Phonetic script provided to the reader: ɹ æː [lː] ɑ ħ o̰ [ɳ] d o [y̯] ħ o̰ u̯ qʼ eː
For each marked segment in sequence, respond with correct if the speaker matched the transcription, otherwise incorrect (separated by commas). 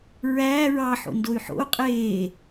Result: incorrect, incorrect, correct